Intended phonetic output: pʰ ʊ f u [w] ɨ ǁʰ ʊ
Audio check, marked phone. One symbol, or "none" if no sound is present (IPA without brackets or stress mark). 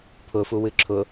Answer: w